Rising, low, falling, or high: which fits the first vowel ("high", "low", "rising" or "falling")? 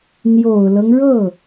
low